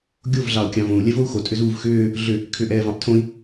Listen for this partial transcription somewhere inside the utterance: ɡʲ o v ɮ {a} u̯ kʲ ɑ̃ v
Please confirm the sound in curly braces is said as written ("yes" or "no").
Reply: no